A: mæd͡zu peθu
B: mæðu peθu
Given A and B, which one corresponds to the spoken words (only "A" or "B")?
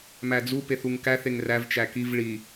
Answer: A